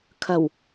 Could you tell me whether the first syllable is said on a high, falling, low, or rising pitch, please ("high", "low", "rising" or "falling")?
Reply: low